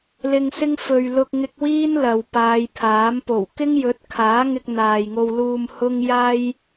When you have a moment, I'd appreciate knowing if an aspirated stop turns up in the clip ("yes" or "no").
yes